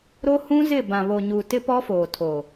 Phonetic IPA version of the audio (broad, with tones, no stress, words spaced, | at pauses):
ɾo˦ hũ˦zɪ˦˨ bã˨βo˨ɲu˨ tɪ˦pɔ˦ foː˨tʰo˨